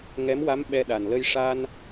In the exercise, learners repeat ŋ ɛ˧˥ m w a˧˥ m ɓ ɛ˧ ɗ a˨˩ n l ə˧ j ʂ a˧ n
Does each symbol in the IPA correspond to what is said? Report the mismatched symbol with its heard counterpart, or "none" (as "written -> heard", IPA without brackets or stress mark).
none